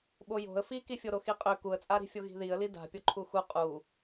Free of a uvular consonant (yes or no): no